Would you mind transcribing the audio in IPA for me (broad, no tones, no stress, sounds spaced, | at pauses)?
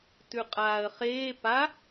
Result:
t ʉ qʼ aː ə̯ χ eː p a